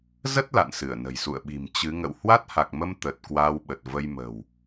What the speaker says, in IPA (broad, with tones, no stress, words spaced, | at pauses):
zə˦˥t̚ la̰˧˨nsɨ˧˩ə̯nə̤˨˩jsṵ˧˨ə̯ ɓi̤˨˩m t͡ɕɨ˨˦ ŋə̰˧˨w hwa˦˥t̚ha˨˩k̚mə˧m t̪ə˨˩t̚ kwaː˧wɓə˨˩t̚və˧j mə̤˨˩w